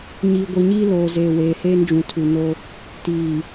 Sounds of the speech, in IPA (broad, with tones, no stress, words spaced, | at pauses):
ɲiː˨ɡʷi˨ɲiː˦ loː˨zeː˨ weː˨heː˦nd͡ʒũ˨ tʰu˨ no˦ | tiː˨